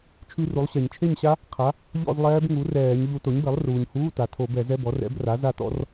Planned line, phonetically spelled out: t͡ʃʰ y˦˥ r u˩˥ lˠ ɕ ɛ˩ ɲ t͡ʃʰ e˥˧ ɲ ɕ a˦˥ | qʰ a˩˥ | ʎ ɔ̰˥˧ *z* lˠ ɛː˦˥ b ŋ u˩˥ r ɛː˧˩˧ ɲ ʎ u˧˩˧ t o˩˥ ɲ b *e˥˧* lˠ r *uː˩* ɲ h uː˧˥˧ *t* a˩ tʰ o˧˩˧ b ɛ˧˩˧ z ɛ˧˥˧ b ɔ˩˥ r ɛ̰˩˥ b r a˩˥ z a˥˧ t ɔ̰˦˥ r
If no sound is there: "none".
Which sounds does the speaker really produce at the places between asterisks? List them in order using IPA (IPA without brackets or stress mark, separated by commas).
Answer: z, e˩˥, uː˩, t